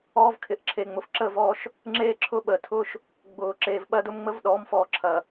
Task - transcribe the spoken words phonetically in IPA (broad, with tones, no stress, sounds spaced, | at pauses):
ɔː˦ v kʰ ɪ˨ ʔ ǁʰ e˨ ŋ͡m ʊ˨ f ǁ əː˦˨ v ɔː˦ ʃ | ŋ͡ǁ eː˦ ǁʰ ʊ˦ ɓ ə˨ tʰ ʊː˦ ʃ | ɡ͡b ʊː˨ ǁ eː˨ v ɓ ɐ˦ d ʊ˦ m ŋ͡m ə˦ v ɗ ɔː˨˦ m f ɔː˨ ǁʰ ɐ˨